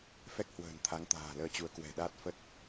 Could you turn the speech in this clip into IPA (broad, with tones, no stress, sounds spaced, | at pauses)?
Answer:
f ɛ˦˥ k̚ h w ə̤ː˨˩ n t̪ʰ a˨˦ ŋ t̪ a̤ː˨˩ l əː˧ t͡ɕ u˨˦ ə̯ k w ɛ̤˨˩ ɗ a˦˥ t̚ f ə˦˥ t̚